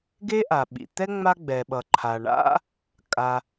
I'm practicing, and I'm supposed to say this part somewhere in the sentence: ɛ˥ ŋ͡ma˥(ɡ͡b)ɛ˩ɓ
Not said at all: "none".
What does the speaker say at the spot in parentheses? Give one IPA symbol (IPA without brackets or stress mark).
ɡ͡b